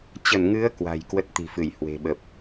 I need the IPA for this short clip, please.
t͡ɕ ə˧˩ n ŋ ɨ˨˦ ə̯ k w a̤˨˩ j k w ə˦˥ t̚ t̪ i̤˨˩ f ɨ˧˩ j h w e̤˨˩ ɓ ə˨˩ p̚

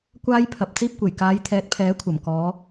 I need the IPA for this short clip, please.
kʷ aː˥ j pʰ ɐ˨ p̚ t͡s iː˥ p̚ kʷ e˨˩ j k aː˨˧ j t̪ʰ ɛː˨˥ t̚ pʰ ɛː˨˥ kʷʰ ɐ˨˩ m k ɔː˨˧

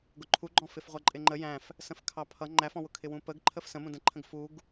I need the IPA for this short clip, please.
ɡ ʊ ǃʰ u ɡ͡ǃ ɔ̃ f ɪ f ʁʷ ʌ ǃʼ ɪ ŋ͡ǃ ə j æ̃ f | s ə̃ f kʰ ɑ pʰ ʌ ŋ͡ǃ æ f ɔ̃ w ʊ kʰ ɪ w ũ p ə ɡ ǃʰ ə f s ə̃ m ũ d ə̃ ǃʰ ə̃ ɡ f u ɡ

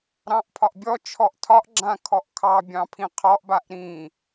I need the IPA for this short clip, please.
ɾ ɑ̃ ʔ pʰ ɒ ʔ bʲ ɔ t͡ʃʰ ɔ ʔ tʰ ɒ ʔ ɡ͡ǁ ã kʰ ɔ ʔ kʰ ɑ bʲ ɑ̃ pʰ ĩ qʰ ɔ ʔ b a ʔ ɾ ĩ

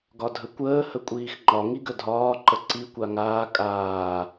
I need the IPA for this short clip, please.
ɡ ɒ dʱ ə kʷ əː h ə kʷʼ iː x ŋ͡ǃ ɒ ŋ i ɡ ə dʱ ɒː ǃ ə ǀ i kʷ a ŋ aː kʼ aː

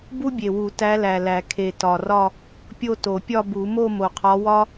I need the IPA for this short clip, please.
b u˥ bʲ e˨˩ w u˨˩˦ t æ˧˥ l æ˨˩ l æ˨˩˦ kʰ e˨˩ t ɒ˨˩ r ɒ˥˧ | pʲ o˥˧ t o˨˩˦ pʲ ɒ˥˧ b u˨˩˦ m o˥˧ m o˨˩ qʰ ɒ˧˥ w ɒ˥

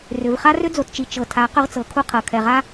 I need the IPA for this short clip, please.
r ʏ˨ v χ a˦ r ʏ˦ d͡z o˨ t t͡ʃ i˨ t͡ʃ ɤ˨ tʰ a˨˦ q ʏ˦ ʁ t͡s ɤ˨˦ kʰ u˦ qʰ ɤ˨ kʰ ɛ˨ ʁ a˦

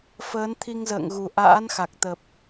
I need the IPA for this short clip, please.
f əː˨˦ n t̪ʰ i˧ ŋ z ə̰ː˧˨ ŋ ɣ u˨˩ ʔ a̰ː˧˥ n x a˨˩ k̚ t̪ ə˨˩ p̚

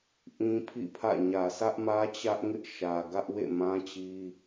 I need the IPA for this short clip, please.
ʔ ĩ˦ pʰ ḭ˦˨ pʰ ä̰˦˨ ɲ ä˨ s ä˦ ʔ m ä˦ t͡ɕ ä˦ ʔ ŋ ɪ˦ ʔ ʃ ä˨ ɡ ä˦ ʔ w ḛ˦˨ m ã˦ t͡ɕ i˦

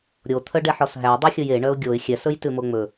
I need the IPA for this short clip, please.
ɾʲ o t̪ʰ œ ɖ ɛ ħ ɔ s ɦ æ dˤ o xʲ ɵ j e ɳ œ ʊ̯ ɡʲ o ɪ̯ xʲ ɛ s ɵ j t ʉ m o ŋ͡m ɵ

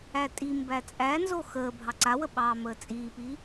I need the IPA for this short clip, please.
æ tʼ i m b æ t͡sʼ æ n z o x əː bʱ ɑ ǀ a w ə ɓ ɑː m əː t͡sʼ iː p iː

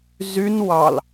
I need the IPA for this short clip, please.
z y n w ɑ l

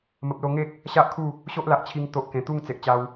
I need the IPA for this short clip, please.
m ə˨ p̚ l o˧ ŋ e˦ k̚ | ɕ a˦ ʔ kʰ u˥˧ | ɕ o˦ ʔ l a˨ ʔ t͡ɕʰ i˧ ŋ t̪ o˦ ʔ k ẽ˨˩ t̪ u˥˧ ŋ t͡s e˨ ʔ t͡ɕ a˧ w

